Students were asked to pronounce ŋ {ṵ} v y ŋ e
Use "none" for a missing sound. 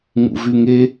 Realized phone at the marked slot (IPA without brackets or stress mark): ṵ